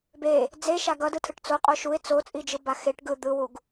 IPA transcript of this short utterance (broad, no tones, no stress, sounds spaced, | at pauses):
b e | d͡z e ʃ a ɡ ʌ d ɯ tʰ ɯ ʈ t͡s o qʼ o ʃ u ɪ̯ t͡s o t͡sʼ i d͡ʒ ɯ b a x e ʈ ɡ ɯ d̪ ɯ w u ɡ